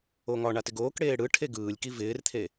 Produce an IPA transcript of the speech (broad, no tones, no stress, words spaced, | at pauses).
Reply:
oŋɒ ɳatɪɡoːkɽeː ɽɯʈʰe ɡɯːlʲki vɪːrt̪ʰe